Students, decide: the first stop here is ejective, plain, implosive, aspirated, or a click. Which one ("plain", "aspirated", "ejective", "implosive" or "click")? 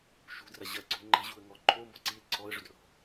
plain